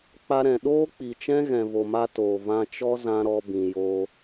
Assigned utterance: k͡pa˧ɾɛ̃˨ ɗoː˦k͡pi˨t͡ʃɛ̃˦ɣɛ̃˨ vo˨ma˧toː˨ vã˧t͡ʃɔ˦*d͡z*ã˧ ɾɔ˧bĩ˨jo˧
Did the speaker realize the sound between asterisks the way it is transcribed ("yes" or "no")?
no